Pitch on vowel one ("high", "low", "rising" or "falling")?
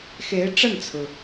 rising